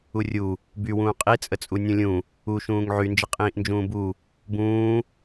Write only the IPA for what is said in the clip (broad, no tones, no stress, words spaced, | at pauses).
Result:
urʲu | bywũː qʼit͡sʼət͡sʼu nʲũlʲũ | uʃũːŋ ʕynd͡ʒəqʼĩːʔnd͡ʒũː bu | bũː